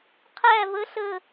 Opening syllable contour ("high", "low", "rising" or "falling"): falling